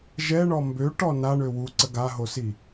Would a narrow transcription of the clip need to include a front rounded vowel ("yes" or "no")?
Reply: yes